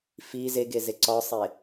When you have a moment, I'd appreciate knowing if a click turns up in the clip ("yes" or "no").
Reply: yes